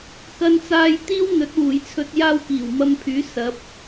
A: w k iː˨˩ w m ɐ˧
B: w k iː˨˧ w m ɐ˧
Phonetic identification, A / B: A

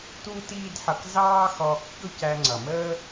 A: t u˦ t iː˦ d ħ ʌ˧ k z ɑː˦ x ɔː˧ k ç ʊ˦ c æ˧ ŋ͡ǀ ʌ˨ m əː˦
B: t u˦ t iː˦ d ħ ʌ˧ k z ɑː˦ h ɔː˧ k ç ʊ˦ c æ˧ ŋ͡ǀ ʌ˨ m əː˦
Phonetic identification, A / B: A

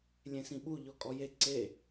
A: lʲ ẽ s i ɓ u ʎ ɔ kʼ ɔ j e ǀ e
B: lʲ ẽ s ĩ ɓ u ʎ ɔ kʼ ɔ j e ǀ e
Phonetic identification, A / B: B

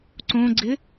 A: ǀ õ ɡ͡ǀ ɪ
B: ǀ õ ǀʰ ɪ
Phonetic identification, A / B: A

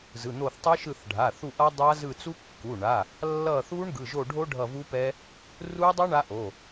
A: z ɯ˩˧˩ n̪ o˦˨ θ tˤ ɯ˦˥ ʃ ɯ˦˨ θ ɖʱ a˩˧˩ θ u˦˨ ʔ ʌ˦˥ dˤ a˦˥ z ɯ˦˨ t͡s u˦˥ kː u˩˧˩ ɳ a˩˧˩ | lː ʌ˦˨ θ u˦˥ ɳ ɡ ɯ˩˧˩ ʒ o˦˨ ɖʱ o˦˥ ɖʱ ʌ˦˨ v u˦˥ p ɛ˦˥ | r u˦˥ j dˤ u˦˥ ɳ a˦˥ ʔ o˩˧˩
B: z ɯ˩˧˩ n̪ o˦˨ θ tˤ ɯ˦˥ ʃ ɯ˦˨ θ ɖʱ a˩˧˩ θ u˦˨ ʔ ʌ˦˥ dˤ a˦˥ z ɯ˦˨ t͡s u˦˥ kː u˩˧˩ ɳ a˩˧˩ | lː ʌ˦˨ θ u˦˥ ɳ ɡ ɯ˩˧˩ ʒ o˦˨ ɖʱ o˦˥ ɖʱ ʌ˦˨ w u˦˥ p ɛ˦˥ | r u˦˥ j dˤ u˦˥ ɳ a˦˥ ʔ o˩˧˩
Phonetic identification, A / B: A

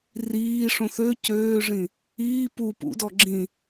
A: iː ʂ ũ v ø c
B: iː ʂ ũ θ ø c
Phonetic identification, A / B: B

